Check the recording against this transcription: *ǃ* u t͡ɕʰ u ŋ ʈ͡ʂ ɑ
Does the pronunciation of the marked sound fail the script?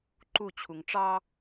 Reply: no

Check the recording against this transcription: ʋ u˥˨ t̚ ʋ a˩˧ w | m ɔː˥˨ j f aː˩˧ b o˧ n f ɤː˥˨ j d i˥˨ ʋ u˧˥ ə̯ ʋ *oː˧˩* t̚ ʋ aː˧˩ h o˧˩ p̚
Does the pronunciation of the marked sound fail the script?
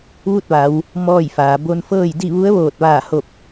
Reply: no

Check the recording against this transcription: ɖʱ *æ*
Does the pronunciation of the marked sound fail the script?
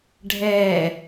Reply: yes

